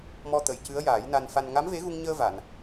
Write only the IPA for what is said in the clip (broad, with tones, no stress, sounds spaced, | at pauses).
m ɔ˧ t̪ ə˨˩˨ j c ɨ˧˥ ə̯ j aː˨˩˦ j n a˧ n f a˧ n ŋ a˧˥ m v e˧˥ ɣ u˧ ŋ ɲ əː˧ v a˨˩˨ n